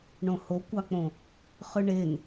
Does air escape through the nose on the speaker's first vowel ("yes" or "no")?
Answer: yes